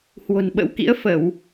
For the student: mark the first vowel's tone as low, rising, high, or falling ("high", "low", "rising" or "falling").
low